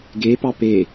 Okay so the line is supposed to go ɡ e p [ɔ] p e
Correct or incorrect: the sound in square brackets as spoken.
incorrect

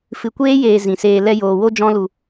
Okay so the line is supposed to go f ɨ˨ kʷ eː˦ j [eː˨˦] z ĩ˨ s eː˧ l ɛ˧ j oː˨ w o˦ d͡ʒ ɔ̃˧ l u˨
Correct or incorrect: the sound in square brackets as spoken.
incorrect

